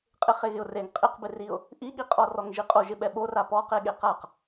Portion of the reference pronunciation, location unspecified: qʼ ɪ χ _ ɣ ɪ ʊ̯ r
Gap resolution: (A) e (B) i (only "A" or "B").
A